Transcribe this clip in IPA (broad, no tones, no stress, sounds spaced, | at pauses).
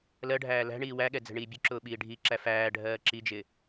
l ɜ ɖʱ æː l æ̤ ɳ iː w æ ɠ ɛ d͡z ɛ̤ ɳ iː bʲ ʊ ǁ ʊː ɓ iː ɖʱ i ǁ æ f æː ɖʱ ɜː ǁ i d͡ʒ ɪ